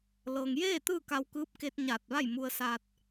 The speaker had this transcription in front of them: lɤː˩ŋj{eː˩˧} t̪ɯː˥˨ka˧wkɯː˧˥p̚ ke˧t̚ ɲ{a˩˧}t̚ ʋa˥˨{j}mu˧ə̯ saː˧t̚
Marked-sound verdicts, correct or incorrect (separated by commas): incorrect, incorrect, correct